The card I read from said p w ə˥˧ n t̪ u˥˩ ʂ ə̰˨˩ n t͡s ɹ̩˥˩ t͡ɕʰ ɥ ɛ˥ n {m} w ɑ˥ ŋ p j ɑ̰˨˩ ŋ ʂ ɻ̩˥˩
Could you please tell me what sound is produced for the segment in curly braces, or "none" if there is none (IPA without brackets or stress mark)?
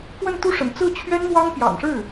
m